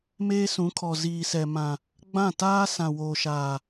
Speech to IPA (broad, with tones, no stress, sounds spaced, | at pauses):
m eː˦ s ũ˨˦ kʰ ɔ˨ z iː˨ s ɛ˨ m ã˨ | ɡ͡b ã˦˨ t aː˦ s ã˨ w oː˨ ʃ aː˨